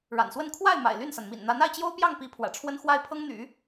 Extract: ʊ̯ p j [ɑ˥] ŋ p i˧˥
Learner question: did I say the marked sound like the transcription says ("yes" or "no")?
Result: no